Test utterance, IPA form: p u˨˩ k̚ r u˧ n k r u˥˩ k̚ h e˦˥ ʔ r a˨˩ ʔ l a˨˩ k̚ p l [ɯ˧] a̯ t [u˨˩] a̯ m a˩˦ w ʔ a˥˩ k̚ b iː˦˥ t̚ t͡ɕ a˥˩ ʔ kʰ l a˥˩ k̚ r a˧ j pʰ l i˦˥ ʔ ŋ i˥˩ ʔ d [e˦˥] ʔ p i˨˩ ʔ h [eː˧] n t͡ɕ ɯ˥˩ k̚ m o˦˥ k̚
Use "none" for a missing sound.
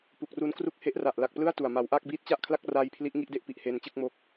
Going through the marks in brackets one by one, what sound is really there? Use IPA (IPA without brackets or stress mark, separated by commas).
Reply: ɯ˥˩, u˨˩, e˦˥, eː˧